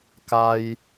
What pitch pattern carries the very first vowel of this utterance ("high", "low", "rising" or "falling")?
high